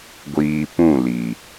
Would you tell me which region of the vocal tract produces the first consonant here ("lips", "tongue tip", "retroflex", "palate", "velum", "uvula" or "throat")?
velum